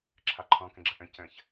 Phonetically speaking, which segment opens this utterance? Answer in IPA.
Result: ǁʰ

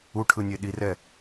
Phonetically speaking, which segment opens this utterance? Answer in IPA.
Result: u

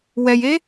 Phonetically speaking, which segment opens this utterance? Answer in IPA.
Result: w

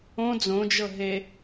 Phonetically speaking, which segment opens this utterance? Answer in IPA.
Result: õ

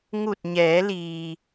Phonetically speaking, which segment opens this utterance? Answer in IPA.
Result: ŋ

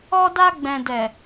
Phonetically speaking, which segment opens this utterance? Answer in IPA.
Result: ɔ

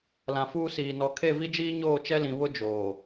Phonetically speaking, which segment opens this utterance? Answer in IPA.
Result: l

